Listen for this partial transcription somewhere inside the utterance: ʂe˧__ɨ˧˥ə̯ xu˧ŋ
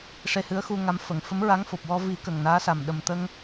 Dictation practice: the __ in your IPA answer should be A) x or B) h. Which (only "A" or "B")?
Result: B